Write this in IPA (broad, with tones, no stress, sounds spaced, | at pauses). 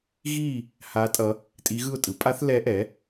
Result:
ɣ iː˥˧ | h a˦˥ tʼ ʌ˦˥ | tʼ i˦˥ ɣ ɯ˥˧ ʊ̯ tʼ ɯ˨˥ pʼ a˦˥ θ l ɛ˦˥ ʔ ɛ˨˥